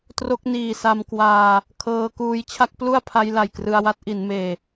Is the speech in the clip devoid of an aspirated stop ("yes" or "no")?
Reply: no